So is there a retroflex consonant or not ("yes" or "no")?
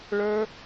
yes